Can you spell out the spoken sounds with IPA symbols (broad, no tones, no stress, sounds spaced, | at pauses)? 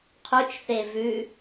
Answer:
qʰ u t͡ʃ θ e v ʉ